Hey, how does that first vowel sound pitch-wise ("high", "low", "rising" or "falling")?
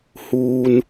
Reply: low